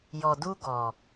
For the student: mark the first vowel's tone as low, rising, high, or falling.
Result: low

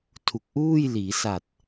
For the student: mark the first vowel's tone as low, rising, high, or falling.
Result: low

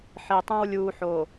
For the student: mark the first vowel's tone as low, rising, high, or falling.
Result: low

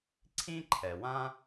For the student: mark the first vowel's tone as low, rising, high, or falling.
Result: high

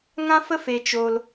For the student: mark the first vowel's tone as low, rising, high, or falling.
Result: high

